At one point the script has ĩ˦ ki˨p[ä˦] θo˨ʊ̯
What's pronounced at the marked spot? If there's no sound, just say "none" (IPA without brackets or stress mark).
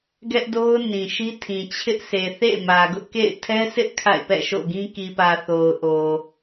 ä˨